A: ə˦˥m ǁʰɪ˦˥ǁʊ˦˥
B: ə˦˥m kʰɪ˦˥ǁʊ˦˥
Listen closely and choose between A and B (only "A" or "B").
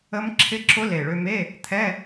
A